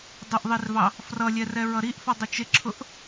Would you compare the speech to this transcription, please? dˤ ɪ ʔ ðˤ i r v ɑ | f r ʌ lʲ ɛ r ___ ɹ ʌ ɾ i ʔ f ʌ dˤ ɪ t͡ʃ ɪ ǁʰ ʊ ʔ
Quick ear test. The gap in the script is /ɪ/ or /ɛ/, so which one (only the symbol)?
ɛ